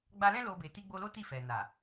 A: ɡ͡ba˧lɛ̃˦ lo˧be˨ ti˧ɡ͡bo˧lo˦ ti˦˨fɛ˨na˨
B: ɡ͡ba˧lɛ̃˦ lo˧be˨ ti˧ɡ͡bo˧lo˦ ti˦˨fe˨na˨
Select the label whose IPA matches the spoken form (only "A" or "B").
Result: A